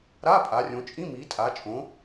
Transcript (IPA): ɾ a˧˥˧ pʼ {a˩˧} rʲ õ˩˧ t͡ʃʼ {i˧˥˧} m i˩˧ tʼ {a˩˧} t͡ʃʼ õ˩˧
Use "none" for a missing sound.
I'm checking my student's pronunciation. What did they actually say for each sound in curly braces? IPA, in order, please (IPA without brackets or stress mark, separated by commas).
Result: a˩˧, ĩ˧˥˧, a˩˧